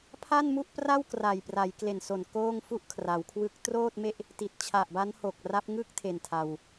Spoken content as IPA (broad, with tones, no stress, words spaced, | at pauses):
pʰa˥˩nmu˥˩ʔpra˥˩wkra˨˩j pra˩˦jkle˨˩nso˨˩n koː˥˩ŋfu˥˩ʔkʰra˩˦wkʰwɯ˦˥k̚ troː˥˩t̚me˥˩ʔ | ti˨˩t̚t͡ɕʰa˨˩ʔba˦˥nho˨˩k̚ ra˦˥p̚ ŋɯ˥˩k̚tʰe˨˩n tʰa˧w